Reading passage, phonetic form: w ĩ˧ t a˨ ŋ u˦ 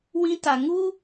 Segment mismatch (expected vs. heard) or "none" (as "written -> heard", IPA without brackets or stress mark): none